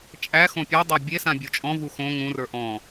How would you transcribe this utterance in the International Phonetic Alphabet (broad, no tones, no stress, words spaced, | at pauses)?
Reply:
t͡ʃʼæxõ pʲædˤa bʲesã bʲot͡ʃʼɔ̃vu xõ ŋũrə˞ ʔɔ̃